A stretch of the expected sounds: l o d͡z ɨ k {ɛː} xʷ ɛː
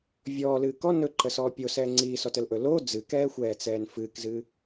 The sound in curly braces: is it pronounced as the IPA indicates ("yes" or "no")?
yes